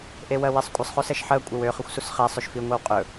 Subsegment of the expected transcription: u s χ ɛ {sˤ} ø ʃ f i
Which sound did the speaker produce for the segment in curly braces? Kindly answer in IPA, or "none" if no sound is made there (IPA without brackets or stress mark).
sˤ